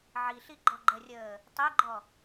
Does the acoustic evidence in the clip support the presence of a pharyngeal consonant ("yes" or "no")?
yes